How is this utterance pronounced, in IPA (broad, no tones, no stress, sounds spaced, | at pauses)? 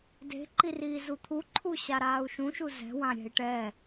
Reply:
d e̤ ǃ i r iː z u t̪ʰ u ǃʰ u ɕ a ɾ aː u̯ ʃ ũ ʃ u z ɛ̤ w ã ɾʲ ɛ̤ i̯ ʈ ɛ